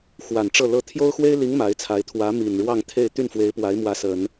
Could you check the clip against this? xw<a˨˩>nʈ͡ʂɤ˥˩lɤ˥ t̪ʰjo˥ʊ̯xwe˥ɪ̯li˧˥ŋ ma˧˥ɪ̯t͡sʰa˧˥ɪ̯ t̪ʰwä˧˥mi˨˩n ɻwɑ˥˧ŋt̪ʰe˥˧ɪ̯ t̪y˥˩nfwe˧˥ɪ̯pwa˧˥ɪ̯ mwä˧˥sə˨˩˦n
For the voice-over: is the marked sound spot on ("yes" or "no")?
yes